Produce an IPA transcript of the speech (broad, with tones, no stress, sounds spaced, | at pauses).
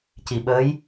c i˨˩ ɓ əː˧˥ j